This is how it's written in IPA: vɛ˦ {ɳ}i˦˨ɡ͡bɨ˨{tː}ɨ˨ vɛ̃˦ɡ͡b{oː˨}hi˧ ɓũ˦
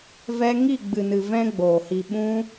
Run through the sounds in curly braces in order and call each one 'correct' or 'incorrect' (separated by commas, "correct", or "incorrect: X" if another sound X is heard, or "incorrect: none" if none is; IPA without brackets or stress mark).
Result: incorrect: ŋ, incorrect: n, correct